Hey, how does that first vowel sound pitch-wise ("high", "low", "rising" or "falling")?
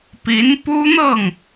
rising